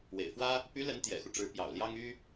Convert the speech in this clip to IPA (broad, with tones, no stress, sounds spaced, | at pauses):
w ḛ˨˩ ɪ̯ f w ä˥ | p y˧˥ l ə˧˥ n t̪ j ɛ̰˨˩ x u˦ ʈ͡ʂ ɻ̩˧˥ p j ɑ̰˨˩ ʊ̯ l j ɑ˥ ŋ y˥